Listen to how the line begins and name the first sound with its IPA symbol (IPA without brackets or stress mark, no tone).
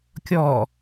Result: kʲ